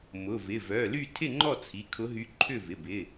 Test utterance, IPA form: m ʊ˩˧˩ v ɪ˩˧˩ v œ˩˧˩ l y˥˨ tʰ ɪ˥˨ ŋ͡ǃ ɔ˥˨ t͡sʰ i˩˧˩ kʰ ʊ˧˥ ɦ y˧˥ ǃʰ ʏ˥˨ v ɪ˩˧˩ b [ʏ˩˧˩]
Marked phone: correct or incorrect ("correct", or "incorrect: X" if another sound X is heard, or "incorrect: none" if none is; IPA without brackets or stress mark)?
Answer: incorrect: ɪ˩˧˩